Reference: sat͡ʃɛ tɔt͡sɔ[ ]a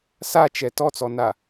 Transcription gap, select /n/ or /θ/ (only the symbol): n